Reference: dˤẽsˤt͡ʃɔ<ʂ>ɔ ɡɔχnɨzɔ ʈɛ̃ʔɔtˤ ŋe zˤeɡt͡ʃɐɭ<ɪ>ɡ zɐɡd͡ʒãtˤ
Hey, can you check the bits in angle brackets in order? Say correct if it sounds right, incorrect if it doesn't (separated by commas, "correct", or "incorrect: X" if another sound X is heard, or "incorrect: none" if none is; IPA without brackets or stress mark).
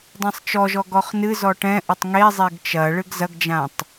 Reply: incorrect: ʒ, incorrect: ɨ